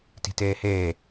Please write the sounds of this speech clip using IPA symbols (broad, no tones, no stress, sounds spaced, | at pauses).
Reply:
t i̤ t eː h eː